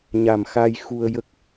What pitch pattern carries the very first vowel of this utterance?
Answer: low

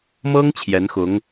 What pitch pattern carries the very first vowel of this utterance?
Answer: high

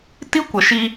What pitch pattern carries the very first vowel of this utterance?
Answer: high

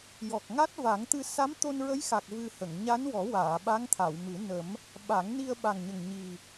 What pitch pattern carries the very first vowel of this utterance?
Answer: low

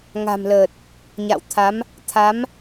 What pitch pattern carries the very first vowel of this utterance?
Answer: low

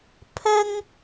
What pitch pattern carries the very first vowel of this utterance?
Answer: high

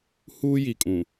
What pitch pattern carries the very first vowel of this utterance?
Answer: high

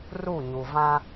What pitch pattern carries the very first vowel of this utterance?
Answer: falling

